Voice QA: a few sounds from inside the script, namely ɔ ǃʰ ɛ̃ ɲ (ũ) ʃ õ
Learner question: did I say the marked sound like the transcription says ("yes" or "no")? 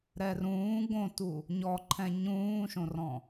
no